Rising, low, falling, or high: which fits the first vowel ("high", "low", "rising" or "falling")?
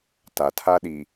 low